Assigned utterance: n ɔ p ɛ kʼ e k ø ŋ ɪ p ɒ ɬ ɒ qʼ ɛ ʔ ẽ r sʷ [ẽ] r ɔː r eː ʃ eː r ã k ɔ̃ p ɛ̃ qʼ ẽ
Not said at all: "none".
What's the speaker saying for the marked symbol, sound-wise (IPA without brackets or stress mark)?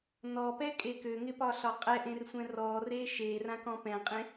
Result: ɛ̃